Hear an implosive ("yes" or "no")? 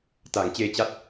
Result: no